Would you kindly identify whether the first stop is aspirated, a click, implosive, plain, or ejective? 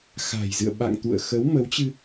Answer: implosive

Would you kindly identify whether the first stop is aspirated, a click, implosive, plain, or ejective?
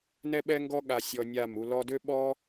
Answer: implosive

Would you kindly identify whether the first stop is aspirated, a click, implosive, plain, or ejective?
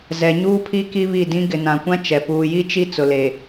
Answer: aspirated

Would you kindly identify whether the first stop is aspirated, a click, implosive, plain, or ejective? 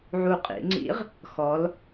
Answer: ejective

